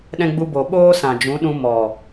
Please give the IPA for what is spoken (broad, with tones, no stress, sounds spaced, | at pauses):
ɗ ɛ̃˧ ɡ͡b u˧ b o˨ ɓ oː˦ s ã˨ d͡ʒ ũ˨˦ ɗ ũ˧ m ɔ˨